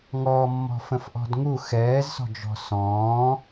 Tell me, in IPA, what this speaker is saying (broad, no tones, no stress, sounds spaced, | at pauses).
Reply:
ŋ ɔ mː ɔ̤ f ə̃ f ʔ ɔ̤ d ŋ u x ɛː z s ɔ̤ d͡ʒ ɔ̤ s ɔ̃ː